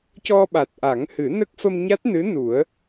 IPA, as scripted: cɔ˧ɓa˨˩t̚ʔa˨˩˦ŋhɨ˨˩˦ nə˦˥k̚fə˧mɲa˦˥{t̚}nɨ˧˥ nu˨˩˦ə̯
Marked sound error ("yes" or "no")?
no